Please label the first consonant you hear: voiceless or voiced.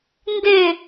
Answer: voiced